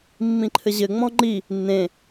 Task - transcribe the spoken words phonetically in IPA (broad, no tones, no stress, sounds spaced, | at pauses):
mː ĩ ǃʰ ɘ ʑ ɘ ŋ͡m ɔ̃ ŋ͡ǃ i | nː ẽ